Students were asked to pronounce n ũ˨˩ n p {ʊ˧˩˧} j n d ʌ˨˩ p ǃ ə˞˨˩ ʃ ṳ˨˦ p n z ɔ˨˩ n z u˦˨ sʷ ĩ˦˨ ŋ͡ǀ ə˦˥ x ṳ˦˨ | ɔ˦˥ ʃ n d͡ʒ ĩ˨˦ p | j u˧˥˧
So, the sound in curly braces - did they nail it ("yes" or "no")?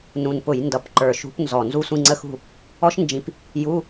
yes